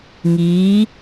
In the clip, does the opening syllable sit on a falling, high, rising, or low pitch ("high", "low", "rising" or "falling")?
rising